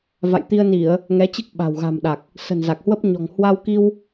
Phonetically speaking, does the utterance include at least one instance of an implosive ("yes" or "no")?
yes